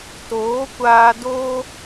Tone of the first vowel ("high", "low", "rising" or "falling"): rising